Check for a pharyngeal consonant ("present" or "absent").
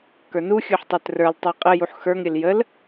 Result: present